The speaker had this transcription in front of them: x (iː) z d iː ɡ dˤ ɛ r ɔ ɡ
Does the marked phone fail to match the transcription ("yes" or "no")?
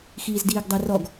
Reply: no